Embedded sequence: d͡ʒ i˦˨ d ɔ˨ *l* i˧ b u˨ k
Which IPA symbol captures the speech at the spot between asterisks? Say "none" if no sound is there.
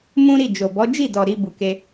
ɾ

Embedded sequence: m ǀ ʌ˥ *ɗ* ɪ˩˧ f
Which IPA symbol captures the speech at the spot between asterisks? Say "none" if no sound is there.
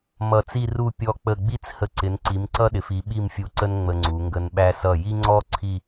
ɗ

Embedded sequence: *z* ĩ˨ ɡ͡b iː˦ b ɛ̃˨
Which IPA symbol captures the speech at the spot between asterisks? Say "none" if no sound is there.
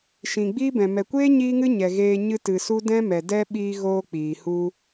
ʃ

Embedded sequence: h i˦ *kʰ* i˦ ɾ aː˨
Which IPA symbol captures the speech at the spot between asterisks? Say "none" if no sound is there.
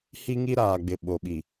ŋ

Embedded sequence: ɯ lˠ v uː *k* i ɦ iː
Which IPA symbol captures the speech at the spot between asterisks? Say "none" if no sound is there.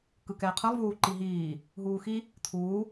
ǃ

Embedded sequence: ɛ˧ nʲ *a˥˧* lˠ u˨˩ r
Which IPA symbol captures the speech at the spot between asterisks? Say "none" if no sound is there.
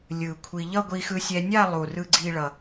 a˥˧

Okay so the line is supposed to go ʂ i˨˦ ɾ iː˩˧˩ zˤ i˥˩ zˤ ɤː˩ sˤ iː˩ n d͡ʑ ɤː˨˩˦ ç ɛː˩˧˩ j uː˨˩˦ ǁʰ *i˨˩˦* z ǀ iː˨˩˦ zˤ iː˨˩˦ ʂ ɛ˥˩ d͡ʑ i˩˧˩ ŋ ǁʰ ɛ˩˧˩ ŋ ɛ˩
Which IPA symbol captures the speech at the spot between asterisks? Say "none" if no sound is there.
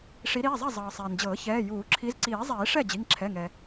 i˨˦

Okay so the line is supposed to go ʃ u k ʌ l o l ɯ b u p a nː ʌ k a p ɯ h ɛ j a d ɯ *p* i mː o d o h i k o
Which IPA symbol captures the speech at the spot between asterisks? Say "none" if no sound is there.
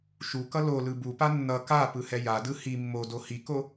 h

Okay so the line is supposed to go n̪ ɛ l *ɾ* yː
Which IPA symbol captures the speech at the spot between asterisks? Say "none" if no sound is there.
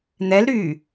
ɾ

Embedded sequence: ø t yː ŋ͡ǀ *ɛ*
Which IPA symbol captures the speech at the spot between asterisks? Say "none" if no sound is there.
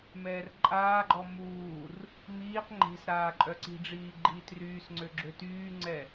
ɛ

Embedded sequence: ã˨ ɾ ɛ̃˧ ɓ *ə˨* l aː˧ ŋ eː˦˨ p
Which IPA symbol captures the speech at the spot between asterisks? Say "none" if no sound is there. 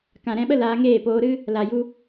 ə˦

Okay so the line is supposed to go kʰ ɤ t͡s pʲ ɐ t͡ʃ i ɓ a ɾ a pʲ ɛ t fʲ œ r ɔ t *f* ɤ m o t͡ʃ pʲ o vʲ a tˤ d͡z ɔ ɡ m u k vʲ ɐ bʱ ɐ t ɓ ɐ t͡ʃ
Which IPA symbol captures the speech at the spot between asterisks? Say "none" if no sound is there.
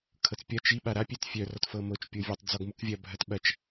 f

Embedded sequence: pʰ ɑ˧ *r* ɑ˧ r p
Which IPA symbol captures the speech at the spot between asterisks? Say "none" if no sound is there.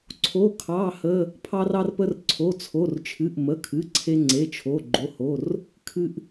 r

